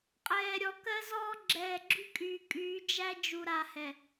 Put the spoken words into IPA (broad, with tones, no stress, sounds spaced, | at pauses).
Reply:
qʼ ɛː˨ ɾʲ ɔ˨ k ɜ˦ z ɔː˦ ɡ͡ǁ ɛː˨ ɡ͡ǁ y˦ kʼ yː˨ kʼ yː˨˦ d͡ʒ æ˦ d͡ʒ u˨ ɾ a˨ h ɛ˨